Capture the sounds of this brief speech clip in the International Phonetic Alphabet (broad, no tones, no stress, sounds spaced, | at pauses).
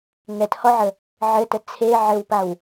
ŋ ɛ t h ɔ ʕ ə | ʕ ɘ t ə t͡sʰ e ʕ ɘ w p a w